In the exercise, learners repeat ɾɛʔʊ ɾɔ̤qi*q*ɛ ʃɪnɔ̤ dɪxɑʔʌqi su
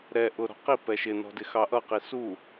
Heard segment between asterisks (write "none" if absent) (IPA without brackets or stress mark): p